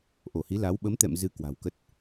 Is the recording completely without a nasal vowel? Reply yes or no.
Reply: yes